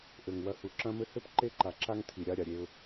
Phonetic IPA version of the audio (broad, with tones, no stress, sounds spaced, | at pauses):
ʔ ɘ˨ ŋ w ɐ˨ h u˨ ǁ ɐ̃˦ m ɘ˦ h ɘ˦ p ǃ e˦ ǃ a˨ ǁ a˦ ŋ tʰ i˨ ɾʲ a˦ ɾʲ a˨ ɾʲ e˦ ʊ̯